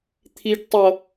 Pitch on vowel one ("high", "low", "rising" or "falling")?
high